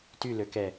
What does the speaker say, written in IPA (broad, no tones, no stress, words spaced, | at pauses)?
tyløkɛ